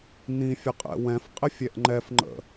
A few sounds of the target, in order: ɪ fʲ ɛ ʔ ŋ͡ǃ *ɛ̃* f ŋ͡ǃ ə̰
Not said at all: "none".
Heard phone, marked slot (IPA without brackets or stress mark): ɛ